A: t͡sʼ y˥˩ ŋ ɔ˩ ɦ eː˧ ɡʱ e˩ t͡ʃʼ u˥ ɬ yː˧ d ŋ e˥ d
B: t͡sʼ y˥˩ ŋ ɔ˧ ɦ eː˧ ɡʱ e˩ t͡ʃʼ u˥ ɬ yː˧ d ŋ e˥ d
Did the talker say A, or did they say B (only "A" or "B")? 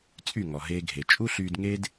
A